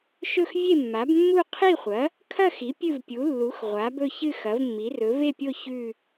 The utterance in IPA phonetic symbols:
ʃɵ˥˨xvʲe˥˨mːa˩˥bmːu˥˨ qʰi˥˨χʷɐ˩˥ | kʰɐ˥˨xi˩˥ pʲɨ˥˨vpʲu˩˥lːu˩˥x ʁʷa˩˥bɵ˥˨çɨ˥˨ xɐ˩˥vmːi˩˥rɵ˩˥ ve˥˨pʲo˥˨ çʉ˥˨

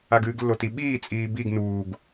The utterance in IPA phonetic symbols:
aɡɨːɡlːoti ɓiːt͡sʼiː biɡ nuːɡ

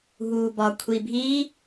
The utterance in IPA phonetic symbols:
ɦuːbɒkʷʰi bʱiː

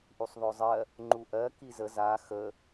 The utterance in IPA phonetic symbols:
ʔusˤðˤɵzˤɜ | ŋ͡ǃuʔɜ kizə za xə

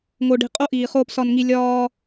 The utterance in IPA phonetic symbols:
ŋo˨ɖi̤˨qʼo˧ ʔiː˨χoː˧psɒ˧nŋi˧ lʲɒː˧

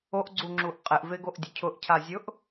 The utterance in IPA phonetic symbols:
oʔɡ͡ǀuŋ͡ǁuʔ qʼɪʔveɡoʔdʲʊ cʰʊʔcʰazʲʊʔ

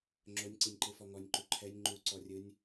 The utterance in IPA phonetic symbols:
ŋ͡ǁonʲǀinʲǃɯfɔ ŋɔnʲǃu ǃʰɛnʲ ŋ͡ǃuǀɔrʲɯnʲ

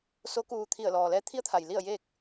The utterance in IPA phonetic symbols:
so˧˥kuː˧ t̪ʰi˧˩ə̯lɔː˩lɛː˧˥ t̪ʰi˧˥ə̯t̪ʰa˩j li˥˨ə̯jeː˥˨k̚

